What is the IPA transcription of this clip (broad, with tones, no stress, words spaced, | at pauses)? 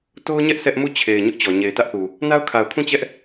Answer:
to˦ʊ̯ɲɛ˦ʔ sɛ˦ʔ mu˦˨t͡ɕʰe˨ɪ̯ ɲʊ˦ʔt͡ɕɔ˨ ɲe˨ɪ̯tä˦ʔθu˨ | na˦ʊ̯kʰa˨ʊ̯kʰũ˦˨ t͡ɕɛ˦ʔ